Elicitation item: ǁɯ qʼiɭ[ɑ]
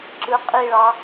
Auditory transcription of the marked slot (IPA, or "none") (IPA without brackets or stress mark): ɑ